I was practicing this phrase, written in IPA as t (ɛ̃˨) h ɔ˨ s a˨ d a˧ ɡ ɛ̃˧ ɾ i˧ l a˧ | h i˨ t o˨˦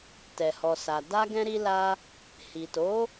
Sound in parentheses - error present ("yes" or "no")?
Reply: yes